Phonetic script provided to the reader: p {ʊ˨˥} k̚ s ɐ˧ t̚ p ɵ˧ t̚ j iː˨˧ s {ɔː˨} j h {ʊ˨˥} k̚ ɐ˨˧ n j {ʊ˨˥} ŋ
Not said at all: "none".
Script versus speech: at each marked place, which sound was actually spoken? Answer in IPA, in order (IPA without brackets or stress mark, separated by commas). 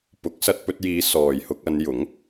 ʊ˨˥, ɔː˨, ʊ˧, ʊ˨˥